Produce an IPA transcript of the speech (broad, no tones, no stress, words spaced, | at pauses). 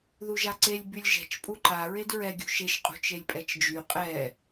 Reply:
ðuʒaǀelʲ bylʲʒɛ̤t͡ʃ pʼuǃa ɹedɹɛ ɡʲṳʃeʃ qʼṳt͡ʃelʲpʼɛt͡ʃd͡ʒy qʼɛ